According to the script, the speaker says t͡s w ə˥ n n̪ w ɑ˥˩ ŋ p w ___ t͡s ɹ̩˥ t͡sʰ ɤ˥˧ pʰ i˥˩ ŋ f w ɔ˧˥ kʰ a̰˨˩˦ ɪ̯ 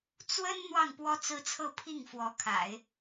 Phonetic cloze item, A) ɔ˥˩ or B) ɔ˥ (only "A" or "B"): B